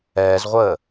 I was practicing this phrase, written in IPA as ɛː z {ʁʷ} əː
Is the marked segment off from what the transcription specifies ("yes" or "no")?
no